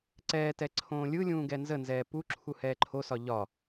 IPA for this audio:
ǀ ɛː t ɛ ǀʰ õː lʲ ɯ lʲ ũː ɡ ɛ n z ə n z ɛː p u ǁʰ u h ɛː ǃʰ o s ɒ ʎ ɒ

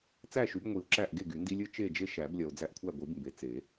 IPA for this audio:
t͡s æ˥˨ ʃ y˩˥ b ŋʷ i˨˩˦ o̯ ǁ æ˥˨ ʔ ɡ e˥˨ ɡ y˨˩˦ n d i˦ lʲ ɨ˥˨ t͡ʃ e˥˨ d͡ʒ e˦ ʃ æ˨˩˦ b lʲ ɐ˨ o̯ d͡z æ˦ ʔ kʷʰ æ˥˨ ɡʷ ɨ˨˩˦ b m b e˩˥ t͡s e˨˩˦

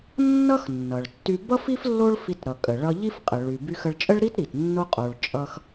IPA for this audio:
nː ʌ˥ x nː ʌ˩ ɭ tː y˧ b ʌ˥ f i˥ f lː o˥ ɭ f i˧ t ɾ ʌ˩ kʼ ə˩ ɭ ʌ˧ ʎ i˥ f qʼ ə˩ ɭ y˩ b y˧ x ə˧ ɭ t͡ʃʼ ə˥ ɭ ɾ i˥ t ɾ i˩ t nː o˥ qʼ o˧ ɭ t͡ʃʼ ʌ˥ x

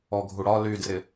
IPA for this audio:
ɔ ɡʱ u ɽ ɒ l y d r ɪ

